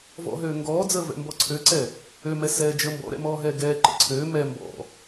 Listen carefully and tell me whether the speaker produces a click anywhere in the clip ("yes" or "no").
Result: yes